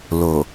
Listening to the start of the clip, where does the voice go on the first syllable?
low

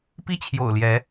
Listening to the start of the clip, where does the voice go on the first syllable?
high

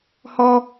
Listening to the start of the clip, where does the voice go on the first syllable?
high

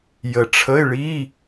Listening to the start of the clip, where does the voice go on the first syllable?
low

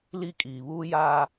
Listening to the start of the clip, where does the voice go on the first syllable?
high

